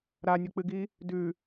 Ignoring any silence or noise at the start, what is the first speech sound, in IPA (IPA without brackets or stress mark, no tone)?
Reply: ɾ